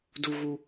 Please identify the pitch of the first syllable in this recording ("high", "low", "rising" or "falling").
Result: low